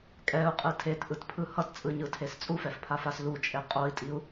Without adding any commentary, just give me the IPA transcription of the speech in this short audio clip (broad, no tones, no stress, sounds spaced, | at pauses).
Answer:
kʼ ɛ u̯ qʼ ɯ tʰ e t ʔ ɯ t pʰ ɯ h ʌ t t͡sʼ ɯ ɲ ɯ tʰ e s t͡sʼ u f ɛ f pʰ a f a s l u t͡ʃʼ e qʼ o i̯ tʼ i u̯